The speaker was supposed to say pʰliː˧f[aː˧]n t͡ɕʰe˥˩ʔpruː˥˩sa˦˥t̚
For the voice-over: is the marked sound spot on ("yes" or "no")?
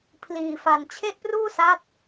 no